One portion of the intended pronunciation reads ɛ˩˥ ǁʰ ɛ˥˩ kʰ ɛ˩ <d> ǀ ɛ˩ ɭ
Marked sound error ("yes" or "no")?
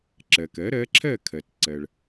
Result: yes